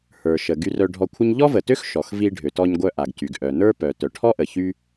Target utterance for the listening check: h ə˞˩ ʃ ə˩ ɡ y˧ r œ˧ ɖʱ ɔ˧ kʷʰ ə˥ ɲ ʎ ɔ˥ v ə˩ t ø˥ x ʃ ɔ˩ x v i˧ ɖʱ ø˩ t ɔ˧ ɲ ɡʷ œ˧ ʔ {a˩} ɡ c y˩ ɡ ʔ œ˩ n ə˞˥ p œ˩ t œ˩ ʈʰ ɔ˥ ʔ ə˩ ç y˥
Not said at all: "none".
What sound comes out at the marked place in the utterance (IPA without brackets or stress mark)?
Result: a˩